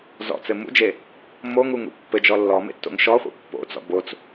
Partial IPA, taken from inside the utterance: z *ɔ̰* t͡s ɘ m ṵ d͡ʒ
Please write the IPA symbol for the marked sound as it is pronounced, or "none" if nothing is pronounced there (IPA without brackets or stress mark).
ɔ̰